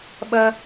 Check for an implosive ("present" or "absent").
present